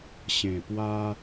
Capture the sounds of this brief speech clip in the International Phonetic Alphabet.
ɕ ẽ˨˩ p w a˦

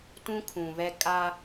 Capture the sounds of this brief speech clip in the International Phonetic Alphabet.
t ũ˦ kʰ ũ˨ β ɛ˦ kʼ a˦

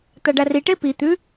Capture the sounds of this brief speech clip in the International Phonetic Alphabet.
t̪ a ɖ a r i ʈ e p i t̪ ʉ

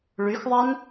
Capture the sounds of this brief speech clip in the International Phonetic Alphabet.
ɭ y x ðˤ a n

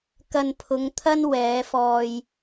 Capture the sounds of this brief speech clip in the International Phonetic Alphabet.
k ɐ˧ n pʰ ʊ˨˧ ŋ t̪ʰ ɐ˥ n w ɛː˨˧ f ɔː˧ j

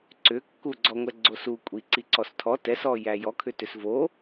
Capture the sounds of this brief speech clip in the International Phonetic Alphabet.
ǀ ʏ kː u ɡ͡ǀ ɔ ŋʷ ɛ ɡ͡ǀ o s u kʷʼ i ǀ i ǀ ɔ s tʰ ɔ t ɛ s ɔ j æ j ɔ kʰ ʏ t ʏ s v o

